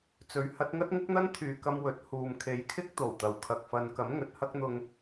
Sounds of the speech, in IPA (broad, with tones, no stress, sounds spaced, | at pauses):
t͡s ɵ˨˥ ɥ h ɐ˨˥ t̚ ŋ ɐ˥ t̚ ŋ ɪ˥ k̚ n̪ ɐ˥ n t̪ʰ yː˨˧ k ɐ˧ m w ɵ˨˥ t̚ h uː˨ m kʰ e˨˧ j kʰ ɪ˥ k̚ t̪ o˨˩ w t̪ ɐ˨˩ w kʰ ɐ˨ k̚ f ɐ˨˧ n k ɐ˨˥ m ŋ ɵ˨˥ t̚ h ɐ˥ k̚ n̪ ʊ˧ ŋ